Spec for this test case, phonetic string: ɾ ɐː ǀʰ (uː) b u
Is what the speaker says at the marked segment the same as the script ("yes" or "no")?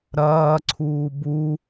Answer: yes